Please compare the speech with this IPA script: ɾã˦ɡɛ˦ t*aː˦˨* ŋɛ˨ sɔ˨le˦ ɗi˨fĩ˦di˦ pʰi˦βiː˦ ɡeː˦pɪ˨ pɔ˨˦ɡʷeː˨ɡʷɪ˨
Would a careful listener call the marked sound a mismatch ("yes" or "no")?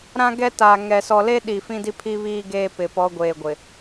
yes